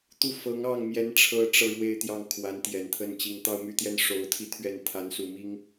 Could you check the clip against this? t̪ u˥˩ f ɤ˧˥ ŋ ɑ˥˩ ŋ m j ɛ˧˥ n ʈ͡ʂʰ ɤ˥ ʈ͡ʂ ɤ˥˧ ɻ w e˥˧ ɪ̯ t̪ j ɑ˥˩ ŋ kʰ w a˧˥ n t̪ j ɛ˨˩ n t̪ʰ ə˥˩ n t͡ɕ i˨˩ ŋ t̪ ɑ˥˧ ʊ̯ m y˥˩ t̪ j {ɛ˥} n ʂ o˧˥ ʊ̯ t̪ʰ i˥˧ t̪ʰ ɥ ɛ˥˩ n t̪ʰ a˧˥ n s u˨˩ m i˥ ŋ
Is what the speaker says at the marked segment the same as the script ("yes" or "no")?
yes